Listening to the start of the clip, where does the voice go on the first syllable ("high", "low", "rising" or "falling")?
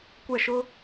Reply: falling